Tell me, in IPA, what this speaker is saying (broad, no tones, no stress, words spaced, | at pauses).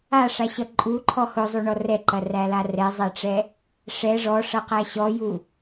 aʂaɕʌ ǃʼuǃʰɔ hʊzˤuɳɔ rɛǃɐræla rɛzˤɛʈ͡ʂɛ | ʂɛ ʐɔʂʌqæ ɕɔju